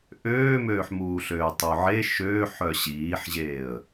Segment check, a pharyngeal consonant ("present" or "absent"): present